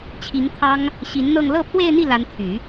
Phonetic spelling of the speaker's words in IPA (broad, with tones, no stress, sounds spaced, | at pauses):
t͡ɕʰ i˧˥ ŋ t̪ʰ ɑ˥ ŋ | ɕ i˧˥ n n̪ ɤ˥˧ ŋ l ɤ˥˧ pʰ w e˥˧ ɪ̯ n̪ i˥˩ l a˧˥ n t̪ʰ y˨˩˦